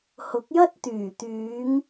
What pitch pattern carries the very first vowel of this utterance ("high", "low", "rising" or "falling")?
rising